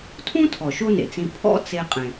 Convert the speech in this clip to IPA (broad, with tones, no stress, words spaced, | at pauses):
tʰũ˥tʰɔ˩ ʃo˥nḛ˩t͡sĩ˧ pʰɔ̰˥t͡se˧qʼẽ˩